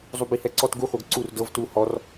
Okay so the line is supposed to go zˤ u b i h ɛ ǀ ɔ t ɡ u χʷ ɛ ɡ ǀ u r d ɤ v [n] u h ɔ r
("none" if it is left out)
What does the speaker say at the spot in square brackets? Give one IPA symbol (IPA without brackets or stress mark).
t